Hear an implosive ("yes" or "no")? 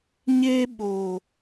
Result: yes